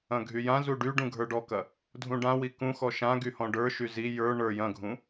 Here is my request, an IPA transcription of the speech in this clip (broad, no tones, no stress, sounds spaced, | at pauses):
ɐ̃ ɡʱ y j ã z u ɖ y ɖ ũ ɡʱ ə˞ ɖ ɔ k ɐ | dʱ ũ ɖ ã w i k ũ x ɔ ʃ ã ɡ y h ɔ̃ ɖ ə˞ ʃ y z i j ə˞ ɳ ə˞ j ɐ̃ ɡʱ ũ